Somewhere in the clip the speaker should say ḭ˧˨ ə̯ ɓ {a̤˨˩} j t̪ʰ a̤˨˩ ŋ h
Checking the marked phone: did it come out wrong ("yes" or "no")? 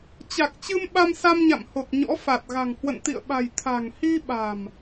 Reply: no